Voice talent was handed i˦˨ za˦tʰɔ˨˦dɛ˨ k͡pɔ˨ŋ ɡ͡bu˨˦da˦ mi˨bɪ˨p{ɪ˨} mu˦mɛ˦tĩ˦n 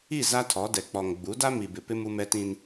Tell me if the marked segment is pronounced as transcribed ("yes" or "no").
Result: no